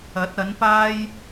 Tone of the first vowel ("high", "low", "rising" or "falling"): rising